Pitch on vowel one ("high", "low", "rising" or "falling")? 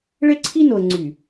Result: high